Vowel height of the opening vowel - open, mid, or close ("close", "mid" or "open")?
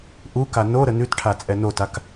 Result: close